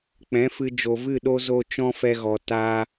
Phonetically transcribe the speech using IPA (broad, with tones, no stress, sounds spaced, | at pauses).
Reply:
k͡p ɛ̃˨˦ f ɨ˧ d͡ʒ o˨ v ɨ˦˨ ɗ o˦ z o˦ t͡ʃ ɔ̃˦ f ɛ˧ ɣ ɔ˨ t a˦